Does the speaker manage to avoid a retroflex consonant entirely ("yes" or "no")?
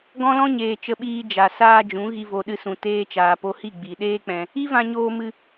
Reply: yes